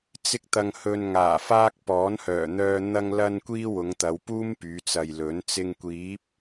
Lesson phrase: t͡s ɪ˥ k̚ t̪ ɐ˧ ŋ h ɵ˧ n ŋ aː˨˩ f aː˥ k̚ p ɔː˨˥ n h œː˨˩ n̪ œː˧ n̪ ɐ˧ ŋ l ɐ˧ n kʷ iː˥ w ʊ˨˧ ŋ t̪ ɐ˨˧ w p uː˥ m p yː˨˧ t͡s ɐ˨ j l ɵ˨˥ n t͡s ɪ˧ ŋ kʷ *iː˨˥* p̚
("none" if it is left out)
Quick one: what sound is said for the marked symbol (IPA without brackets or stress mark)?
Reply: iː˨˥